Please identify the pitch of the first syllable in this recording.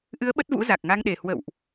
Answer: rising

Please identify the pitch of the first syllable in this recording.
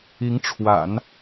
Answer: rising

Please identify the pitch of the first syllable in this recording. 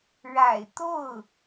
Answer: low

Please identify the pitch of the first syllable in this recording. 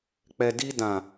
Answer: low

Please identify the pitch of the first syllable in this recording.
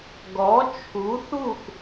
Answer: rising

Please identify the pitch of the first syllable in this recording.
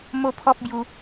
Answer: high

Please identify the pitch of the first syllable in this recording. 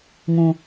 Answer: low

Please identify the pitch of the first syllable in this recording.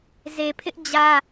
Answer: low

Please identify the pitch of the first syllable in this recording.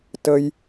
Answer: low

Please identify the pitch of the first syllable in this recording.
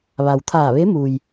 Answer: low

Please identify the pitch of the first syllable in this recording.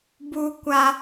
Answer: high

